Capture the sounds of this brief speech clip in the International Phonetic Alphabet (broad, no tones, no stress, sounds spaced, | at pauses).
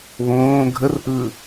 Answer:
β õː ɡʱ ə r ʔ ɯ